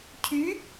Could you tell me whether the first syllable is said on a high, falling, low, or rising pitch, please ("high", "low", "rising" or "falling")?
rising